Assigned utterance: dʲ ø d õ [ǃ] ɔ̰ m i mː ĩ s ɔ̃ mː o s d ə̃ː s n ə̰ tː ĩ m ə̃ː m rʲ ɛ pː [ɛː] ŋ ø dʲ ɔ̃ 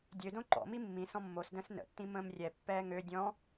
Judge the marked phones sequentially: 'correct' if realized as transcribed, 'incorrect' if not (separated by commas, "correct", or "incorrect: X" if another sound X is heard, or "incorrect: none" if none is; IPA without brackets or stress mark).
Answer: correct, correct